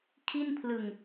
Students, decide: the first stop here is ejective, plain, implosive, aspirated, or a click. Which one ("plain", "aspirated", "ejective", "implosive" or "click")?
aspirated